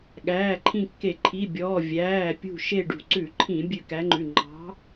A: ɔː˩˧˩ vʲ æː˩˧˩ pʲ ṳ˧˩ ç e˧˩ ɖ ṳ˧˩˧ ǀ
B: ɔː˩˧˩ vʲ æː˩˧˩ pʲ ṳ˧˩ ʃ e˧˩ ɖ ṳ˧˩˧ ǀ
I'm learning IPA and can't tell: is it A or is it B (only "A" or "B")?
B